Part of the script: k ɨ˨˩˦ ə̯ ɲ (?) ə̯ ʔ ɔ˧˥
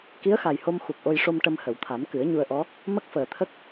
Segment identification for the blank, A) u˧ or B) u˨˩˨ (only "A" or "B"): A